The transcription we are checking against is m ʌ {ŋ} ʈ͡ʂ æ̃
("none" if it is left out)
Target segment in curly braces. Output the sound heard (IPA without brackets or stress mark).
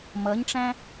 ɲ